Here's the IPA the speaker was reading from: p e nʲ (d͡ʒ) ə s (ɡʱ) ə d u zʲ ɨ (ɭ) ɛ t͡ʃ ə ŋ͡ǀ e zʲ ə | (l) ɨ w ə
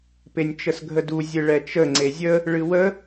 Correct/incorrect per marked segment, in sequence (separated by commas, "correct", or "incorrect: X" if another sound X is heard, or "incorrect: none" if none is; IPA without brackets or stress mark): incorrect: t͡ʃ, correct, correct, incorrect: ɭ